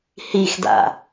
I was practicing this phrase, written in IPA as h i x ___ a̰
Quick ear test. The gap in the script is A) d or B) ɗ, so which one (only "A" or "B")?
A